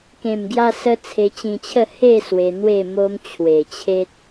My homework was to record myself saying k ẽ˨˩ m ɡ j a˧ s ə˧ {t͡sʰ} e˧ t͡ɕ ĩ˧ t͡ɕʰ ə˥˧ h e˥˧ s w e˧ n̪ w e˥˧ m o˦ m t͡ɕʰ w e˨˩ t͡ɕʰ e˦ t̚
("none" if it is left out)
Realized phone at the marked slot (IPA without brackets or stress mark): t͡sʰ